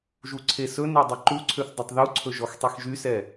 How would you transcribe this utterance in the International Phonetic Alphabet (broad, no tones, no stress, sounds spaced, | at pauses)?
ʒ u ǀʰ e s ɵ n e dˤ i ǃ u ǀʰ ø θ dˤ ɵ tˤ ð u ǀʰ ɵ ʒ ɔ x tˤ i x ʒ y s ɛ